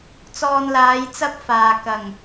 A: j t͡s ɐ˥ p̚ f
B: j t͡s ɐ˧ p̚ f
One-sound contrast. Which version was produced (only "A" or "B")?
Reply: A